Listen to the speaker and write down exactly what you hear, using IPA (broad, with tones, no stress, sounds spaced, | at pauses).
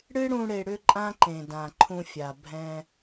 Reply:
ɽ ɨ˦ ɽ ũ˧ ɽ e˧ ɽ ʏ˦ ǃʼ ã˦ ǃ ẽ˨ d ã˨ ǃʰ ũ˧ fʲ a˨ bʱ ɛ̃˧